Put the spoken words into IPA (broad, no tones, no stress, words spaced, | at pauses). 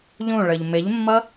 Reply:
ʎũɭəʎ mɪʎmːʌ